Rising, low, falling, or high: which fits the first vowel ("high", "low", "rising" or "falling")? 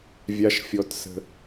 high